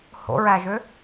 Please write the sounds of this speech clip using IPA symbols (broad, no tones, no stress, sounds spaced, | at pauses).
h o̰ ɹ æ ʒ ø